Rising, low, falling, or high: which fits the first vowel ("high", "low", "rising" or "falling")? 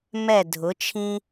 falling